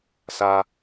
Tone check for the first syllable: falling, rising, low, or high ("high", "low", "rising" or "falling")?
high